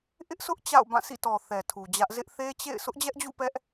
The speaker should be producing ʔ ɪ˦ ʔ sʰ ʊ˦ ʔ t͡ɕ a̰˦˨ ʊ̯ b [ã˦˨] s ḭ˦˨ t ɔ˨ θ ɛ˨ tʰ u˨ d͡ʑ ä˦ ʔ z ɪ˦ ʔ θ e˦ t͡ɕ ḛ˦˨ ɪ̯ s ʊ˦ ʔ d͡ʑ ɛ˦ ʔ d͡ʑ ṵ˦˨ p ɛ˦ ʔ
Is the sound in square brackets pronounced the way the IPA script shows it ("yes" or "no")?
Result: yes